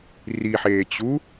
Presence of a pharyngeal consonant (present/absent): present